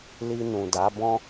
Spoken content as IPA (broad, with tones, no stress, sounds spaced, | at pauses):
l i˧ n ũ˨ d a˨˦ b ɔ̃˦